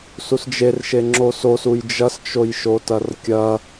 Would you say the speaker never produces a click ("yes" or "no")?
no